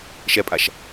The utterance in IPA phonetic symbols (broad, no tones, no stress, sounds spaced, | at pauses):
ʃ ɛ pʼ a ʃ